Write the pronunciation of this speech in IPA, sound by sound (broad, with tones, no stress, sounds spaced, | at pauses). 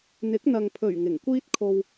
n̪ ɪ˨˥ k̚ n̪ ɐ˨ ŋ pʰ ɵ˨˩ ɥ ŋ ɪ˨˩ ŋ kʷ iː˥ t̚ kʰ o˧ w